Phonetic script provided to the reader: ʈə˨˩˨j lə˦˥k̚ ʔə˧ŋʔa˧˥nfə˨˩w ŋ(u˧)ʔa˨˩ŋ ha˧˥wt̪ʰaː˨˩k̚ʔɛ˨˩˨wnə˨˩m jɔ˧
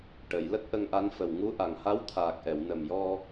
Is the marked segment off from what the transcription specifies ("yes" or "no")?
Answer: yes